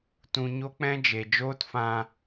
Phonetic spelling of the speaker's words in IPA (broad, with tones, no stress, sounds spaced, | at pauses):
t ũ˧ ɲ o˦ k͡p ɛ̃˦ d͡ʒ e˨ d͡ʒ oː˦ t f ã˧